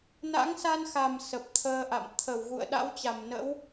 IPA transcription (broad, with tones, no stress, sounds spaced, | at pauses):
n a̰˧˥ ŋ s a˧ n x a˨˩ m s ə˨˩ p̚ t̪ʰ əː˧ ʔ a̰˧˨ m t̪ʰ ə˧˩ w ɣ ṵ˧˨ ə̯ ɗ a̰˧˥ w t͡ɕ a˧˩ m n ə̰˧˥ w